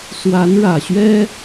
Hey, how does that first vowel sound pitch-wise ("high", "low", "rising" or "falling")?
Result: rising